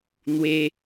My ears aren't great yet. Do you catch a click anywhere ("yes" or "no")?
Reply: no